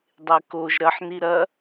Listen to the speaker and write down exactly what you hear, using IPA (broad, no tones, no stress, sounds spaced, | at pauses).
dˤ e k o ʒ ɾ ɐ ħ n i ɾ ɐ